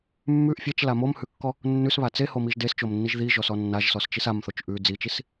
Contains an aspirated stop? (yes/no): no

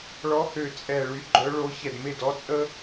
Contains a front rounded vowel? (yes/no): yes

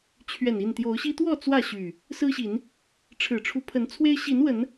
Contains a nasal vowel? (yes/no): no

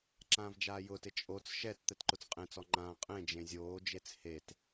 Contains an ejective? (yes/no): yes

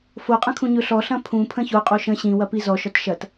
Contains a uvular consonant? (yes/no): yes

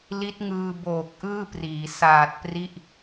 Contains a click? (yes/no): no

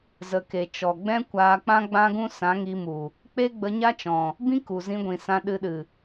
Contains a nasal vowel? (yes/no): yes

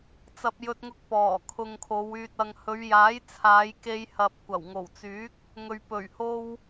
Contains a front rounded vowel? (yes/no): yes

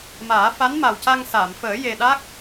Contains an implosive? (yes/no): yes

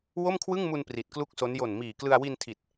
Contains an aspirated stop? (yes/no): yes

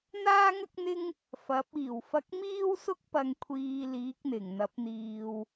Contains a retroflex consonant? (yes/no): no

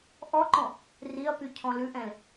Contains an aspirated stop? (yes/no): yes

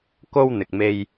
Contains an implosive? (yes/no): no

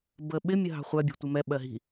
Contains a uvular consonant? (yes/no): yes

